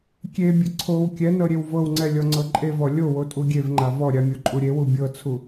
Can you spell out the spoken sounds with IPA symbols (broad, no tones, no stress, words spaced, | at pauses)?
kʲebʲɘ ǀʰow kʲɛnɤ ɾʲewvɤwŋ͡ǀɛ lʲɔŋ͡ǀɤǃʼevɔ lʲowo tʼuɡʲevŋ͡ǃa vɔɾʲa mʲoǃʼuɾʲewu bʲɤt͡sʰu